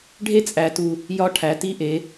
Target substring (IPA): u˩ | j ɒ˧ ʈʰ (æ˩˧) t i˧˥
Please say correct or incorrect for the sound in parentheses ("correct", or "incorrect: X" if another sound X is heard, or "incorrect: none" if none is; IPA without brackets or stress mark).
correct